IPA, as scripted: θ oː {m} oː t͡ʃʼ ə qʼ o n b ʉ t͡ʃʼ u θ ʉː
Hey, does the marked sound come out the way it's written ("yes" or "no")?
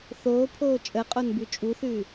no